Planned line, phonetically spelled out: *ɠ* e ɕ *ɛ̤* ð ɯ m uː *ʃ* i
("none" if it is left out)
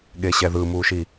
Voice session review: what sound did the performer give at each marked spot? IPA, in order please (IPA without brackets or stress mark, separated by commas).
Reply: ɠ, ɛ, ʃ